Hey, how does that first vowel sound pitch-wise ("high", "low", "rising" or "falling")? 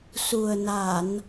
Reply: low